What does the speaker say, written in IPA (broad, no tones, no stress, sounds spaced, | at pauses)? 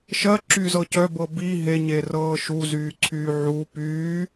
ʃ ɜ ǁ y z ɤ c œ b ɤ b i ɦ e ɲ e r ɤː ʃ u z yː ǀʰ yː ʕ u p yː